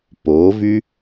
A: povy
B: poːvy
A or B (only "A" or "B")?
B